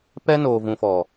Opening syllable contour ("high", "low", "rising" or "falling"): high